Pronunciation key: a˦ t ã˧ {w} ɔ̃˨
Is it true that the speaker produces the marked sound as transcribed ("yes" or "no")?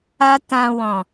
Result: yes